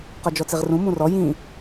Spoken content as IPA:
q ɔ d͡ʒ ɔ t͡s i ʁ r ũ m ũ r ɔ j ĩ

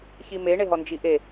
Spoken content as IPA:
ç i m e ɳ e ɦ ɔ n d͡ʒ i ʔ e

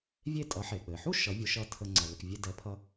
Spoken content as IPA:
vʲ e˥˩ tʼ ʌ˩˥ ħ e˩ k͡p ɘ˩ ħ u˥ ʃ ʌ˩˥ vʲ ʊ˩˥ ʃ ʌ˧ tʰ ə˧ ŋ͡ǀ ʌ˩ l ə˩ k vʲ e˧ d ɛ˩˥ pʰ ʌ˧

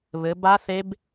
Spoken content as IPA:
β ɘ˩˧ b a˦˥ θ e˦˥ b

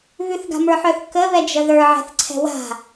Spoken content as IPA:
β ʉ θ ɡ a̤ m ə˞ ħ œ θ k ə β ɛ d͡ʒ ə ð ə˞ ʕ ɛ̤ θ ǀʰ ɛ̤ w a̤

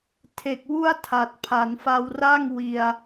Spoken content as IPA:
tʰ e˨˩ k̚ w u˥˩ a̯ tʰ a˨˩ t̚ pʰ a˩˦ n f a˧ w r a˥˩ ŋ w i˧ a̯

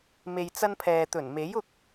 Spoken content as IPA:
m e˨ j t͡s ɐ˧ n pʰ ɛː˨ t̪ ɵ˨˩ n m e˨˥ j ʊ˧ k̚

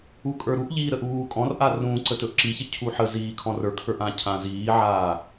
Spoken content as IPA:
u kʼ ə˞ ɾ u ʔ ʎ iː ɾ ə ʔ uː kʼ ɔ̃ r ʔ a r ũ ǀ ə t ɵ ʔ ǁ i ç ə cʰ u ħ ə z iː kʰ ɔ̃ r ə˞ kʰ ə˞ ʔ ã cʰ ã z iː ʕ aː

